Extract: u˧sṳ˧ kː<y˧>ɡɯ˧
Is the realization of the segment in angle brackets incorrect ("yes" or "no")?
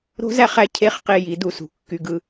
no